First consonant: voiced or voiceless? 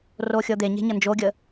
voiced